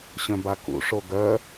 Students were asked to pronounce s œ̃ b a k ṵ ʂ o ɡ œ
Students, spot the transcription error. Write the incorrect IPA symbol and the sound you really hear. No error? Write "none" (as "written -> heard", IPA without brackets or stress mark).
s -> ɕ